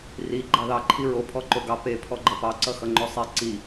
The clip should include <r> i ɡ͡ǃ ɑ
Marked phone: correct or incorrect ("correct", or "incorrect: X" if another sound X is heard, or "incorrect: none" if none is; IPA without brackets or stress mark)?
correct